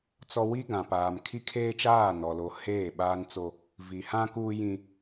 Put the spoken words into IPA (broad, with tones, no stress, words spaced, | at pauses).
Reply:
t͡sɔ˦ wi˦ɡã˨paː˨m kʰi˦kʰeː˦t͡ʃaː˦˨nɔ˨ lo˨ heː˦˨ɓaː˦nt͡so˦ | vi˨hã˦ kuː˦jĩ˦